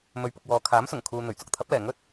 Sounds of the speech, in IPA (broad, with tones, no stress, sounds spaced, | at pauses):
m ɵ˨˥ ɥ p ʊ˨ k̚ w ɔː˨ kʰ aː˨˥ m s ʊ˨˩ ŋ kʰ uː˨ n̪ ɵ˨˩ ɥ t͡s ʊ˧ k̚ t̪ʰ ɐ˨˥ p̚ l ɛː˨˩ ŋ ɵ˥ t̚